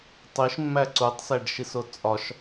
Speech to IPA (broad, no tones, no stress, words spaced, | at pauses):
tˤiʃmːæ ǀutˤsæɖʃiso t͡sʼɒʃ